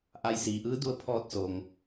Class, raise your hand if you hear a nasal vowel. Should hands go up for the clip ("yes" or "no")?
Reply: no